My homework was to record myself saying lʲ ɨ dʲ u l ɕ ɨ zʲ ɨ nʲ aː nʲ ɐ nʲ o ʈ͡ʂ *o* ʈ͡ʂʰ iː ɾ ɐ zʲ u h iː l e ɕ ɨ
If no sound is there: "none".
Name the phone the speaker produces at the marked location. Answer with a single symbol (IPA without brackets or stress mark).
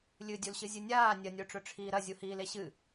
ɵ